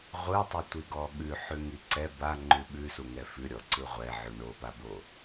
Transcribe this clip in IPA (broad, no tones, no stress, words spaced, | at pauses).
ʁʷɯtˤɯtʷiɡɔ ɠʉħʉŋi ǀɛ baŋ͡ǃʉ ɓʉsuŋɛ fʉɾʲɔǀɯ ʁʷɛʕʉ ɳopabo